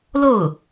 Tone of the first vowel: falling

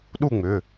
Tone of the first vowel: falling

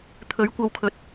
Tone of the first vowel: rising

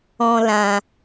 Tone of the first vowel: high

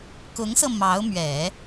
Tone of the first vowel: rising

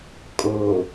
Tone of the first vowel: low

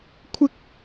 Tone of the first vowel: high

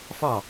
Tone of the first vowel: falling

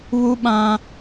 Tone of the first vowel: high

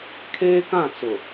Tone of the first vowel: high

